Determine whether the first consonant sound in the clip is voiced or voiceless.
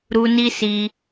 voiced